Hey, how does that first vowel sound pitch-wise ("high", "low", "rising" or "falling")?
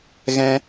high